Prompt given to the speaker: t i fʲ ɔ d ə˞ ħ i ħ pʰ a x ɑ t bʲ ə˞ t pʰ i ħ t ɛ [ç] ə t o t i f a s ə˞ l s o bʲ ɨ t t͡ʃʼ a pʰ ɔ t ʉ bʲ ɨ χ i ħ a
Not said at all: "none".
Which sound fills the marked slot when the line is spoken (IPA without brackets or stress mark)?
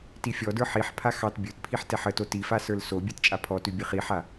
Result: ħ